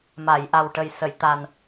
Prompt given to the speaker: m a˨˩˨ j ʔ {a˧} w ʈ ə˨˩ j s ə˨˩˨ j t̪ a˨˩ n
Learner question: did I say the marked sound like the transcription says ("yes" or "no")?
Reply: no